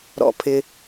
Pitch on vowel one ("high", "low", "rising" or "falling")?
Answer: low